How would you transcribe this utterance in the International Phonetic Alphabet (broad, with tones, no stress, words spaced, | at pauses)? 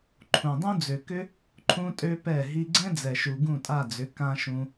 ǃʰũ˨dˤũ˦ d͡zø˨kʏ˦ | ǃʰũ˦tʼø˦pɛ˦˨ ɦi˧ɡ͡ǀɛ̃˦d͡zɛ˨ʃu˨ ɡũ˦˨tʼa˦˨d͡zʏ˨˦ kã˧ ʃũ˧